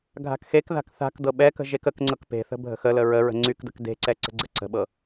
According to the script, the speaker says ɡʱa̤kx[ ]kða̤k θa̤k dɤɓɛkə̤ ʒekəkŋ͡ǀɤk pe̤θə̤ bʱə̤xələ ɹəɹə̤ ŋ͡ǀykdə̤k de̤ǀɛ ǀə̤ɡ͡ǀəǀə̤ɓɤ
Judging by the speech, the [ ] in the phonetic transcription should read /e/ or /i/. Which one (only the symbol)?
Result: e